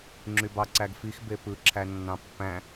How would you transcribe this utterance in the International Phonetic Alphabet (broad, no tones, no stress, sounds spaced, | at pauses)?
ŋ͡ǁ y b ɑ ǀ æ ɡ f i x b e p ɯ ǁʰ æ nː ɑ̃ pː æ̃